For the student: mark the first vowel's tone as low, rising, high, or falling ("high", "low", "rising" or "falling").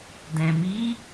low